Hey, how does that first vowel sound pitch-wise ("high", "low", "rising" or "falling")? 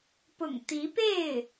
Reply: low